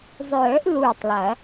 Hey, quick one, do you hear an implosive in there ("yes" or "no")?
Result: no